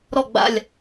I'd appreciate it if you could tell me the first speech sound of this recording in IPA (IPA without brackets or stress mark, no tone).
ɾ